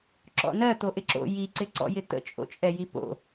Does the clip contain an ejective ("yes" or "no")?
yes